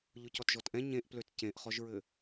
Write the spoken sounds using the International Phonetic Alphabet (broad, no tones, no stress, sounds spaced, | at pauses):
ʎ ʊ c ɔ t ʒ ɔ t ʔ ɛ̃ ɲ ẽ ʔ p l ø t c ẽ ʔ χ ɔ ʒ ɹ ɘ